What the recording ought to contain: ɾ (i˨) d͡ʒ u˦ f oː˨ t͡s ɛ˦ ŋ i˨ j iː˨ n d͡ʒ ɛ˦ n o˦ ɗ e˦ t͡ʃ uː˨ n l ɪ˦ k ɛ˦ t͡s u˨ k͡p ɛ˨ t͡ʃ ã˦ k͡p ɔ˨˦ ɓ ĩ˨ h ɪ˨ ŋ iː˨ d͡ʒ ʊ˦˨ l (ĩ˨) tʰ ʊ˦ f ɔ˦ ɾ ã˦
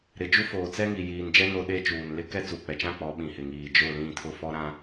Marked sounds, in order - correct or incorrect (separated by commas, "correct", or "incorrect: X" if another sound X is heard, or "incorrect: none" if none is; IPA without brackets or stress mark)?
incorrect: ɪ˨, incorrect: ĩ˦˨